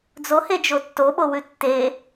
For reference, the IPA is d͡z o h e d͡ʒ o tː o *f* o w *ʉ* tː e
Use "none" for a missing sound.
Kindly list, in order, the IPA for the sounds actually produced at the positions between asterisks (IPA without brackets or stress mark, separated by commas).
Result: ɓ, ʉ